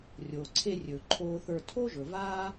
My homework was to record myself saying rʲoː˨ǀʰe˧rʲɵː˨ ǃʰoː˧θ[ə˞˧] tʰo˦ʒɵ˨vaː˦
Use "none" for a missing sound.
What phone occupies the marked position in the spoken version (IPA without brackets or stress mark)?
ə˞˧